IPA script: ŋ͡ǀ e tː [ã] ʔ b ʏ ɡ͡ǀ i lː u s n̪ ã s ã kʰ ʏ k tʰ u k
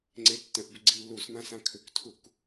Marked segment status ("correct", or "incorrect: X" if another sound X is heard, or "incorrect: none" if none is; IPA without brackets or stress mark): incorrect: ə̃